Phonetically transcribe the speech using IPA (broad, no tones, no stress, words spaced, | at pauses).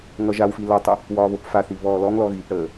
ŋʌʒawfi lʌtˤə | wɒːβopfaθi βɔːlɔŋlɔ ɣipɽəː